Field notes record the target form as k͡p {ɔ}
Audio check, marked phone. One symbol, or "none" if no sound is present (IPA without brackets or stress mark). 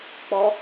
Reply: ɔ